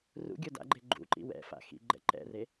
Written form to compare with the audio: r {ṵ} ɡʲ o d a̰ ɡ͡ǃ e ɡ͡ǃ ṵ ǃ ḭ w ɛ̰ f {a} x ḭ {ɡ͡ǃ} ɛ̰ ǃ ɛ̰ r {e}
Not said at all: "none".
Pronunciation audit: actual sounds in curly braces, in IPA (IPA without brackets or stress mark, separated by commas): ṵ, a̰, ɡ͡ǃ, e